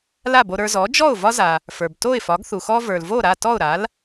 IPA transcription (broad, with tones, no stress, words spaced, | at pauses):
la˥˩bo˧ɾə˞˧ zɔ˩˥d͡ʒɔ˥˩ʊ̯ vɒ˥za˩ | fə˞˩bto˥˩ɪ̯fɒ˩˥ɡ θu˩xɔ˥ və˞˩lvo˥˩ɾa˥˩ tɔ˥˩ʊ̯ɾa˩˥l